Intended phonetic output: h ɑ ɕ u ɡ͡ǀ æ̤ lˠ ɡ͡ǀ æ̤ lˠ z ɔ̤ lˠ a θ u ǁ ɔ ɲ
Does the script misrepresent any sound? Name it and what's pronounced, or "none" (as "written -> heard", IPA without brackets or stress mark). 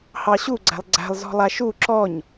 θ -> ʃ